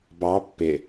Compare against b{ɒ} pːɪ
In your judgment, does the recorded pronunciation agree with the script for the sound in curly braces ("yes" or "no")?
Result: no